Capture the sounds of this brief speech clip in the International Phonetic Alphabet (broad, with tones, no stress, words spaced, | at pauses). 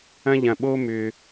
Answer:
ɐ̃˦ʎɐ̃˨ɓo˦mʏ˨